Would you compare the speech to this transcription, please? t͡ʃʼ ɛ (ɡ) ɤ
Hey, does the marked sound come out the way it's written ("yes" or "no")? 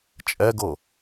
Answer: yes